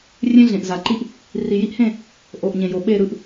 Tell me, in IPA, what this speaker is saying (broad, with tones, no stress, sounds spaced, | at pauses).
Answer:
rʲ ẽ˦ ɮ ẽ˨ ʔ z a˨ ǃ i˦ ʔ | r i˨ j i˦ ʔ h ẽ˦˨ | ʔ o˨ ʔ ɲ ẽ˨ j o˨ ɓ e˦˨ ɾ ɯ˦ ʔ